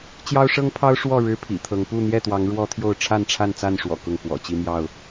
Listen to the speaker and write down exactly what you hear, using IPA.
t͡ɕ j ɑ˦ ʊ̯ ʂ ɤ˦ ŋ pʰ ɑ˦ ʊ̯ ʂ w ɔ˥˨ ɻ ɻ̩˦ pʰ ḭ˨˩ t̪ʰ ɤ˨˦ ŋ p u˥˨ n̪ j ɛ˥˨ t̪ w ɑ˨˦ ŋ ɻ w ɔ˦ t̪ʰ j o˥˨ ʊ̯ ʈ͡ʂʰ a˥˨ n ʈ͡ʂʰ a˥˨ n t͡s a˥˨ n ʂ w ɔ̰˨˩ k ʊ˥˨ ŋ k w ɔ̰˨˩ t͡ɕ i˦ m j ɑ˥˨ ʊ̯

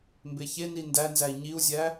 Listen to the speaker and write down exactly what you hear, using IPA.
m b e ç e n i n d æ n z æ i̯ ɲ i u̯ zʲ æ

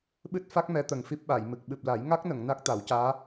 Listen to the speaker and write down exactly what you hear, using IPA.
ɓ ɨ˦˥ t̚ f a˦˥ k̚ m ɛ˧˥ t̪ ə˨˩ ŋ f i˦˥ p̚ ɓ a˨˩˨ j m ɨ˨˩ k̚ ɓ ɨ˨˩ p̚ l a˨˩˦ j ŋ a˦˥ k̚ n ə˨˩˨ ŋ n a˦˥ k̚ t̪ a˨˩˦ w c aː˧˥

